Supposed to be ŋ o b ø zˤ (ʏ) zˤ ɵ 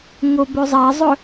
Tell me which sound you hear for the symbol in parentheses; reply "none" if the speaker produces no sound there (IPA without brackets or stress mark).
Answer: ɛ